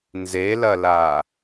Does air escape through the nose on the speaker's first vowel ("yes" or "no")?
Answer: no